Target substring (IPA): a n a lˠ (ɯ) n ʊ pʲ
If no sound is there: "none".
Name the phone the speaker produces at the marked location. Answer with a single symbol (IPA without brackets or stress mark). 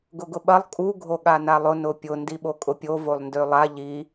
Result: ʊ